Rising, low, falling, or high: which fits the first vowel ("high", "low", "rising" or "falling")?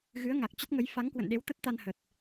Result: rising